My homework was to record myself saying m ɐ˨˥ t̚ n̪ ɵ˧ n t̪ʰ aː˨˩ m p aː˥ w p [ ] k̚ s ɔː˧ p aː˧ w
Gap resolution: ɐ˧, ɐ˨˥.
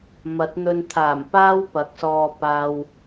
ɐ˨˥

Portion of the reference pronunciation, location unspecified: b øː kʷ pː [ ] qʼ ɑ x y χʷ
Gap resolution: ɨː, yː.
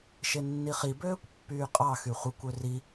yː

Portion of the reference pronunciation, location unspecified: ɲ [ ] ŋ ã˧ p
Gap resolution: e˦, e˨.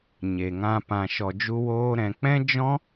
e˨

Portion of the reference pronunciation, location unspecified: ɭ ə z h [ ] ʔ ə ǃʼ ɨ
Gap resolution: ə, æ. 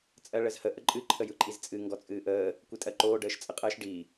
ə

